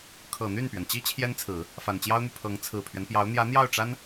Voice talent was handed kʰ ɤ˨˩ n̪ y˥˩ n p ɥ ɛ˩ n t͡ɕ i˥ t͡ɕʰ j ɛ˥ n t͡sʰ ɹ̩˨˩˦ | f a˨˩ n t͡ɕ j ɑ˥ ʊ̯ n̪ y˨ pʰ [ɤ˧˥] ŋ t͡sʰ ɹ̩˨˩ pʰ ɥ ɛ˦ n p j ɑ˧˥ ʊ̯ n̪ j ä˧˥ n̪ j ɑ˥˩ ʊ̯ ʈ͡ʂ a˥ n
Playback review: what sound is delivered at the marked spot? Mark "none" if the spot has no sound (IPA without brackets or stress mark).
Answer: ɤ˧˥